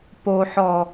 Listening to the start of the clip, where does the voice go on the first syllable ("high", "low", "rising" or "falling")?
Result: low